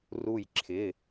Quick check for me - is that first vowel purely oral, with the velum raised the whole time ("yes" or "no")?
yes